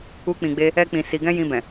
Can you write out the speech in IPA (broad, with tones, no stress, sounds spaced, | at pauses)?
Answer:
u˦ k͡p ĩ˧ ɡ͡b e˦ | ɛ˧ k͡p ĩ˨ s i˨ ɡ ɛ̃˧ j ĩ˧ b ɛ̃˨